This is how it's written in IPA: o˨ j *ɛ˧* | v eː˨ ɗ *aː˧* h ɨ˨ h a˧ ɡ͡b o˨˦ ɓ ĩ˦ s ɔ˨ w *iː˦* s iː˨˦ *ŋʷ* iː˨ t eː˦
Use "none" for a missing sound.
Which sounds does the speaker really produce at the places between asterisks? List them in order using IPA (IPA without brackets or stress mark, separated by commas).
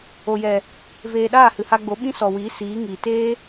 ɛ˨, aː˦˨, iː˨˦, ŋ